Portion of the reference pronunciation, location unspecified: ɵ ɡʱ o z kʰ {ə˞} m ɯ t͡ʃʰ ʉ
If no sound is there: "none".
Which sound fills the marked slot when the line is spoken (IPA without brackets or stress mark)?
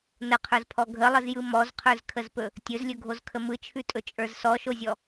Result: ə